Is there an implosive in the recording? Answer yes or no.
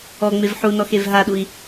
yes